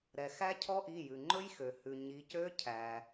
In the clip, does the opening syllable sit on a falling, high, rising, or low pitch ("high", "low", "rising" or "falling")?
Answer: low